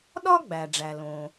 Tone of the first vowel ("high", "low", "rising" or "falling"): high